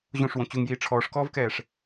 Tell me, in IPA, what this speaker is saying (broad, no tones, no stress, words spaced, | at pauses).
ʑõʂwõ t͡ɕuŋjiː ʈ͡ʂʰɔːʂkɔːvkɛːʂ